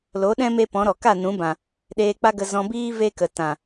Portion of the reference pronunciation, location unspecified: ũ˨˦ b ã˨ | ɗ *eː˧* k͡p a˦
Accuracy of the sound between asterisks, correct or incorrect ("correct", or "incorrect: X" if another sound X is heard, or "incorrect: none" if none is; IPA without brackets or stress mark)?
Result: correct